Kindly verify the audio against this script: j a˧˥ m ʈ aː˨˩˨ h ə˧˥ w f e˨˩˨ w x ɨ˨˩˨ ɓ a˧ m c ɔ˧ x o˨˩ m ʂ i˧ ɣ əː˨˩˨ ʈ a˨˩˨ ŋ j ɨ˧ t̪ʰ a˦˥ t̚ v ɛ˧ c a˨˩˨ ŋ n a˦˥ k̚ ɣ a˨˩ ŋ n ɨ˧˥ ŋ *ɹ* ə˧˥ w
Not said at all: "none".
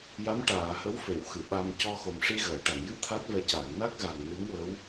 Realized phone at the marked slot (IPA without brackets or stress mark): w